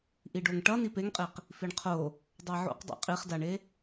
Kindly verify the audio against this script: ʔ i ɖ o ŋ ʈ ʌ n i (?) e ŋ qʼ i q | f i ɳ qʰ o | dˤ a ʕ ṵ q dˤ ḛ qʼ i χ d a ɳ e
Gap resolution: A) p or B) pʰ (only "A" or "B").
A